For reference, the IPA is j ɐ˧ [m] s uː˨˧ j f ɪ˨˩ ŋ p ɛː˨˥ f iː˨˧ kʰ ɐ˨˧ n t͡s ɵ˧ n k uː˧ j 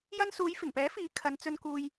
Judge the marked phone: incorrect: n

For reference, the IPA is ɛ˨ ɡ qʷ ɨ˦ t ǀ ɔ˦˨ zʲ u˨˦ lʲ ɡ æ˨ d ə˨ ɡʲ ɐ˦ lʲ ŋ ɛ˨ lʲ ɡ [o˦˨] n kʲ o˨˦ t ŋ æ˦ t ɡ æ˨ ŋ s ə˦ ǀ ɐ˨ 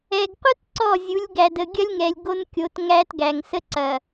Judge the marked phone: incorrect: o˦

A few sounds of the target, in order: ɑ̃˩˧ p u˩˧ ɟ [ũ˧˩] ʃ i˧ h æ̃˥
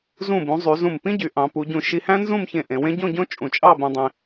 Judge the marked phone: correct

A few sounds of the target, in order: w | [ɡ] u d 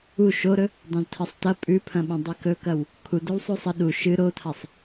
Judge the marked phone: incorrect: kʰ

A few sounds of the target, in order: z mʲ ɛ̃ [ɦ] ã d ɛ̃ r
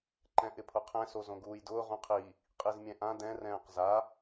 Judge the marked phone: incorrect: ʔ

